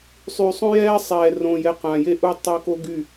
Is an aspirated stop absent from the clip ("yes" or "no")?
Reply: yes